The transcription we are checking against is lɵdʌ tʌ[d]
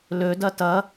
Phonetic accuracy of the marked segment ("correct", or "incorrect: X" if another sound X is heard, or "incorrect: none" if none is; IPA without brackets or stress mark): incorrect: none